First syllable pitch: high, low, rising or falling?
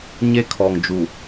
high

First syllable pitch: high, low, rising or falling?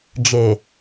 low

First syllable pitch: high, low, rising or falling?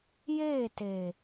falling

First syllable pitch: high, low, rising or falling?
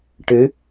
rising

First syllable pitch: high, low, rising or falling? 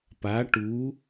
rising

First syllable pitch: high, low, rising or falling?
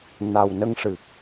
low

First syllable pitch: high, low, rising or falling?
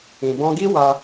low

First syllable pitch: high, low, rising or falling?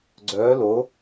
rising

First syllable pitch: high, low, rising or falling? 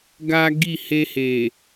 high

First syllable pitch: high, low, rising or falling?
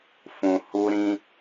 low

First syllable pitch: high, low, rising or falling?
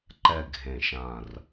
low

